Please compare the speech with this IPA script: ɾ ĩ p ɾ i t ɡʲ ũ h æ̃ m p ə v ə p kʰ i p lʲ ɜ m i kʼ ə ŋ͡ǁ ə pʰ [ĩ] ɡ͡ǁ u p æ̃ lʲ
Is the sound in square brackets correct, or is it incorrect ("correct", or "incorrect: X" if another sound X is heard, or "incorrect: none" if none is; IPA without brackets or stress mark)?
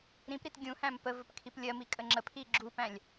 incorrect: i